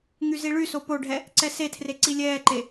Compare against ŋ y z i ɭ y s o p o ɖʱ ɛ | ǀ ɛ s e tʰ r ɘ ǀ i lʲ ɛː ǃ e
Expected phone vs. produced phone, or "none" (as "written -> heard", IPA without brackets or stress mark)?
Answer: ɘ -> e